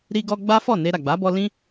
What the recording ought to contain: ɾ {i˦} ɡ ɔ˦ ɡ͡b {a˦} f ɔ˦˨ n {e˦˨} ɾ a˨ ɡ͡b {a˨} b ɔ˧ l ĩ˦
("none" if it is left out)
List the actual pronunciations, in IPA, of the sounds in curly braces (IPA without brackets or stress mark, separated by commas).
i˦, a˦, e˧, a˨˦